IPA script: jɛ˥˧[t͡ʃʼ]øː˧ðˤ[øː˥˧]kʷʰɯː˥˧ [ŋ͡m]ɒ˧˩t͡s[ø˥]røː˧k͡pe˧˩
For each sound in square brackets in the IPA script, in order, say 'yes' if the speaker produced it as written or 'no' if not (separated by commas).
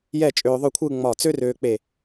yes, no, yes, yes